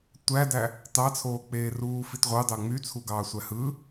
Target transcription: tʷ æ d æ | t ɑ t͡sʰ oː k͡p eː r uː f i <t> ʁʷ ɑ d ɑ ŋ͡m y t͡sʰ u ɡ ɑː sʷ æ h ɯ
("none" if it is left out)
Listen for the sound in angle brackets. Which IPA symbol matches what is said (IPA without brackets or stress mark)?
t